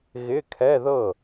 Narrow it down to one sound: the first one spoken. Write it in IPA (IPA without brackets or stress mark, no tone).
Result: ɣ